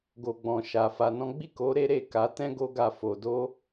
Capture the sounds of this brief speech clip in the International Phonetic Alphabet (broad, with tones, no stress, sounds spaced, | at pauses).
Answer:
ɡ o˨ ɡ͡b ɔ̃˨ ʃ a˨ f a˧ n ɔ̃˦ ɡ͡b i˦˨ k o˨˦ ɾ e˦ ɾ e˦˨ k a˨˦ t ɛ̃˦ ɡ o˦ ɡ a˦˨ f o˧ d o˦